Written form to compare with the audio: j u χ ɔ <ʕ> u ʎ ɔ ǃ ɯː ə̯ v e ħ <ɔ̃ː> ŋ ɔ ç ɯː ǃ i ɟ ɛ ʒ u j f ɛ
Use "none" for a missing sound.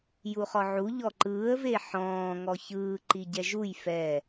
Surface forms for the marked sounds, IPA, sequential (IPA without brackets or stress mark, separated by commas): ʕ, ɔ̃ː